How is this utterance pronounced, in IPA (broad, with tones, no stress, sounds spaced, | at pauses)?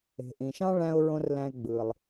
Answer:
e̤˩ ʔ ĩ˩ ʃ ɑ̃˥ ɭ æ̃˧ ʊ̯ ɹ õ˧ r l æ̃˧ ɪ̯ ɡ͡b ɯ˩ lˠ